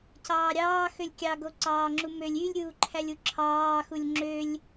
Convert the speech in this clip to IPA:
c ɑː ɾʲ ɑː x ø lʲ kʲ ɑ ɡ o ǀ ɑː ŋ͡ǁ u m ø lʲ y lʲ ɾʲ uː ǃʰ æ lʲ u ǁʰ ɑː x u lʲ ŋ͡ǁ ø lʲ

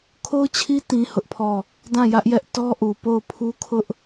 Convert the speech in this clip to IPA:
kʰ o˦ ʊ̯ t͡ɕʰ i˦ t ĩ˦ h ʊ˦ ʔ pʰ ɔ˦˨ | d ã˦˨ j ä˦ ʔ j ɛ˦ ʔ t ɔ˦ ʔ u˨ p o˦˨ ʊ̯ pʰ u˦ kʰ ʊ˦ ʔ

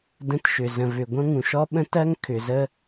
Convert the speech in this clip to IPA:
d ə̃˥ t ʃ ʏ˩ z ə̃˩ v ʏ˩ ɡʷ ɐ̃˥ ŋ ũ˩ ʃ ɔ˥ ɓ ə̃˥ t ɜ˥ ŋ kʰ ʏ˩ z ə˥

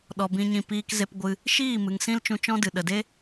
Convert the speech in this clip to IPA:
ɗ ɔ˧ b ĩ˦ ɲ ĩ˦˨ p iː˧ k z e˧ p ɡʷ ɨ˧ | ʃ iː˦˨ m ɨ˨ ŋ s ĩ˦ l t͡ʃ ũ˧ t͡ʃ ɔ̃˦ d ɨ˨ ɗ ə˨ d e˦

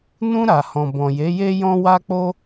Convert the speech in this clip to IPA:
n ũ˧ ɾ a˨ h ɔ̃˨ b ɔ̃˨ j e˨˦ j e˦ j ɔ̃˦ w a˦ k͡p o˦

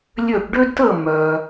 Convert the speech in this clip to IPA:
lʲ ø˥˧ ʈ ɖ ø˥ d t əː˥˧ mː œː˨

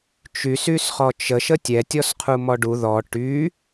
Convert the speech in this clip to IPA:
t͡ʃ y s y s χ ɔ t͡ʃ ə ʃ ə tʲ ɛ tʲ ɔ s qʰ u m ɔ ɖ u ð ɔ ʈ y

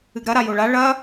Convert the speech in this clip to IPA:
ɨ ɡ ɾ ɐ ɾ a j o ɭ a ɭ ɐ

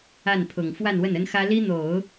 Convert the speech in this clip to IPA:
a˥˩ n pʰ ʊ˨˩ ŋ f w a˥˧ n w ə˥˩ n ə˥ n x ä˥ l i˥ n̪ o˨˩˦ ʊ̯

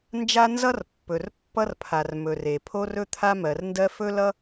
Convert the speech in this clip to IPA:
n d͡ʒ a˥ n z ʌ˥ r pː ɵ˩ r pː ʌ˥ r pʰ a˩ r m ɵ˩ r e˩ pʰ o˥ r ɵ˥ t̪ʰ a˥ m ɜ˩ r n d ɜ˥ f ɵ˥ l ʌ˥

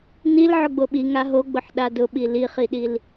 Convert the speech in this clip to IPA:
n i l ʕ ʊ ɡ͡b o ɓ i ŋ a ɦ o ɡ͡b ʊ ħ ɗ a d ʊ ɓ i l i χ i ɗ i l

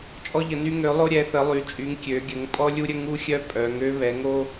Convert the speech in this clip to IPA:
t͡ʃʼ ɔ˦ ʎ ə˩˧ n y˦ ŋ ø˩˧ lˠ o˦ ɾʲ ɛ˩˧ θ ə˩˧ lˠ y˩˧ t͡ʃʼ y˩˧ ŋ kʲ ø˩˧ ɡʲ ə˩˧ ŋ pʼ ɔ˦ lʲ u˦ ɾʲ ə˦ ŋ u˦ xʲ œ˦ pʼ œ˩˧ ŋ ø˦ β ɛ˩˧ ŋ o˦

